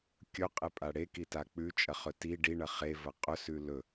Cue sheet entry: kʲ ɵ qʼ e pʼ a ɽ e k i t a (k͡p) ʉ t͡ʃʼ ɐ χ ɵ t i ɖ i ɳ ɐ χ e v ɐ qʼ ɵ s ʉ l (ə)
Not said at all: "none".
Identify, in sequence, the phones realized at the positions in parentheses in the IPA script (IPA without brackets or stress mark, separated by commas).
k͡p, ɵ